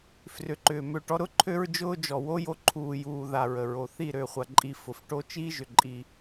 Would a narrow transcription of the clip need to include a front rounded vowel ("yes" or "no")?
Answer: yes